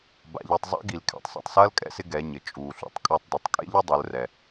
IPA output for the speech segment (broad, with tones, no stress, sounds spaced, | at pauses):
b a̰˩ ʎ i˩ tˤ zˤ a̰˧˥ ɡ i˩ l kʰ ɛ̰˩ tˤ sˤ ṵ˩ tˤ s ɐː˧˥ l kʼ ɛ̰˧ s ɪ˧ ɡ ɛ˩˧ ɲ ɘ˩ t͡ʃʼ uː˩ ɬ ṵ˧ tˤ kʼ ɒ˧ tˤ d u˩ tˤ kʼ ḛ˥ ʎ ɪ˥ dˤ u˩˧ l r ɛ˩